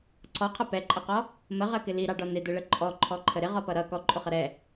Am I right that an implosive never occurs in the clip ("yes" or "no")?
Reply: yes